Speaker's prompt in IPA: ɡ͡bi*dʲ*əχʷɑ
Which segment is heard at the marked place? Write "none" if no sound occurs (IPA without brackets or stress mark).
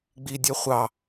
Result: dʲ